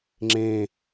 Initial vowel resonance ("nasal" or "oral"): nasal